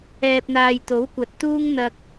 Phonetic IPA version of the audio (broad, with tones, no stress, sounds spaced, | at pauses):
ɛː˧ p̚ n̪ aː˧ j t̪ o˨˥ w kʷ ɐ˨ t̚ t̪ uː˥ ŋ n̪ ɐ˧ k̚